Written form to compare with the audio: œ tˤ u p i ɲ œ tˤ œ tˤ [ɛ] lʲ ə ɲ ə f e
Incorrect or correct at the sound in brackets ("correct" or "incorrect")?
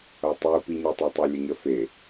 incorrect